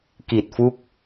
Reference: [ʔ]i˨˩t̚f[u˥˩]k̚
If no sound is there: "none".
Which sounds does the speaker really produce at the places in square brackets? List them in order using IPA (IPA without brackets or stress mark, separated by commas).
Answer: k, u˦˥